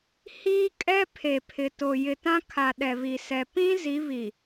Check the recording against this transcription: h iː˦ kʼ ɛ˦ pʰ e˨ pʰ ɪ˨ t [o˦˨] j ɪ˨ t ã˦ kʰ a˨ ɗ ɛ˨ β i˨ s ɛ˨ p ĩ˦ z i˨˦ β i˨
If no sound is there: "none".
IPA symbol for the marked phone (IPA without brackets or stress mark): o˨